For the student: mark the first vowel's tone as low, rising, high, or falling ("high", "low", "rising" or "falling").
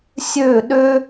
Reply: falling